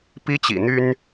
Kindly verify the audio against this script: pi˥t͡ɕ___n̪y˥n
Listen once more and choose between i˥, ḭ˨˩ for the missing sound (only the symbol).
ḭ˨˩